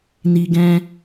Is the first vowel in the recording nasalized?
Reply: no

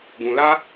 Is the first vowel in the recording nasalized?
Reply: yes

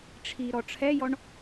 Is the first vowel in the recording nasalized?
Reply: no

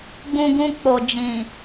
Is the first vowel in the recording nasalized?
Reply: yes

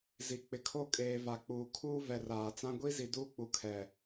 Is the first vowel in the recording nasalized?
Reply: no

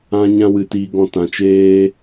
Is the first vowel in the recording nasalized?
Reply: yes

